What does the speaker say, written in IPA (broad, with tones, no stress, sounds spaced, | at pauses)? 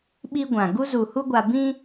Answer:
ɓ i˦ ɡʷ ã˨ ɡ u˦ z u˨ h u˦ ɡʷ a˨ b ĩ˦